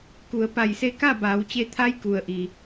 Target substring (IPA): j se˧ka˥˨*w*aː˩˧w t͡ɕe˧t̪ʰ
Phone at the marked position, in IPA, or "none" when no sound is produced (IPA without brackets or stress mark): b